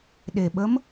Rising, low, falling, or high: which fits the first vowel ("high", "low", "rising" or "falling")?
low